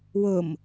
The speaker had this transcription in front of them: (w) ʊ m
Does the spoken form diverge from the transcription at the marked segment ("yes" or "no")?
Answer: no